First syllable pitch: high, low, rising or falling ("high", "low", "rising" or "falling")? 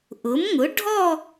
rising